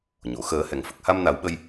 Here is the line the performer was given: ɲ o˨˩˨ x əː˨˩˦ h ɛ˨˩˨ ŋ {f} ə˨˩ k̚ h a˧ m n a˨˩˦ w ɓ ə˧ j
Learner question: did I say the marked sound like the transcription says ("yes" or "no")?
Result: yes